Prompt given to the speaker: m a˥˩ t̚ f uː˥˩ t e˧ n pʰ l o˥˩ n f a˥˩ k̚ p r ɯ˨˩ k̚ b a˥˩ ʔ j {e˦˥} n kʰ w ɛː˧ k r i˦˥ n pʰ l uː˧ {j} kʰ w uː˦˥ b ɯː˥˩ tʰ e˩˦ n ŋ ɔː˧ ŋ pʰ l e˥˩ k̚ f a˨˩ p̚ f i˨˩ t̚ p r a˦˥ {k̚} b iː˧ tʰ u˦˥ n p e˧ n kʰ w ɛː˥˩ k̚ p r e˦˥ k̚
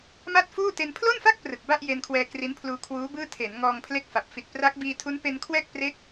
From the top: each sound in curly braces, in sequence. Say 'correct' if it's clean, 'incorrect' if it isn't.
incorrect, incorrect, correct

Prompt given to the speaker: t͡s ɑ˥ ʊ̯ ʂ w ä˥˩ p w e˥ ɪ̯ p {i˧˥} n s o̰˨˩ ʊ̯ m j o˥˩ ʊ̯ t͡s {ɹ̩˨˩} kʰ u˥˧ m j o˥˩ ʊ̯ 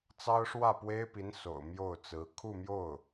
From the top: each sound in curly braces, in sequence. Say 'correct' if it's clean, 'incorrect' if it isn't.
correct, incorrect

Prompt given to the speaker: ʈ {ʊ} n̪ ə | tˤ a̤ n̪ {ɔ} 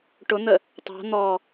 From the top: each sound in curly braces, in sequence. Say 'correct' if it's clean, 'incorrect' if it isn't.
correct, correct

